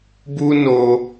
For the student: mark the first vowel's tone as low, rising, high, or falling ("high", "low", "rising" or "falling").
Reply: high